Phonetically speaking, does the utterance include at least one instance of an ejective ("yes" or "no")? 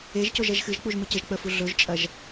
yes